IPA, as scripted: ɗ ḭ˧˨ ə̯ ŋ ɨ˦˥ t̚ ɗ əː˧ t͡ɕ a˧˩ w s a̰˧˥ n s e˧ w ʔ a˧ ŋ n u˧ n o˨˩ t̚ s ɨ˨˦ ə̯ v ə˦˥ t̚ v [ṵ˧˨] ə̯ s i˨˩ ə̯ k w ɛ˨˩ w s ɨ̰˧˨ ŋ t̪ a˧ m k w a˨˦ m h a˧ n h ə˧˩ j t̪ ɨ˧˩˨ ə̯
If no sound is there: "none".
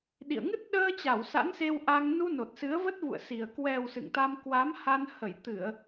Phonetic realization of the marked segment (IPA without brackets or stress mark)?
ṵ˧˨